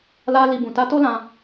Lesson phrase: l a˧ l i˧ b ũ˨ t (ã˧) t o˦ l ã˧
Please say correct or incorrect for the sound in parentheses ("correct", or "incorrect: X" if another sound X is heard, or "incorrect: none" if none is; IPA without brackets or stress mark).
incorrect: a˧